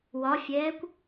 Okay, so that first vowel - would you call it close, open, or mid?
open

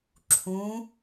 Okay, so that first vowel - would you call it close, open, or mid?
close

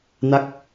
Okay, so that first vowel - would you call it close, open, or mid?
open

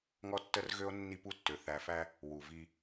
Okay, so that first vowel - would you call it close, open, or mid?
mid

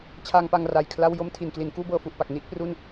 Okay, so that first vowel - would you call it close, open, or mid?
open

